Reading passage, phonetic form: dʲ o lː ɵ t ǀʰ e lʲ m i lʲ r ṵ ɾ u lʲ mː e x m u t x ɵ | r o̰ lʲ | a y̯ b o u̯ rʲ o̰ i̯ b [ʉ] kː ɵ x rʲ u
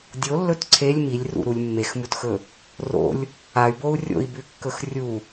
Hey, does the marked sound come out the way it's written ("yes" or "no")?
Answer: yes